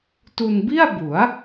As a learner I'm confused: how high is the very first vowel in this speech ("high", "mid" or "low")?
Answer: high